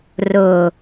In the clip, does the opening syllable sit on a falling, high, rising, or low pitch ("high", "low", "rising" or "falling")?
low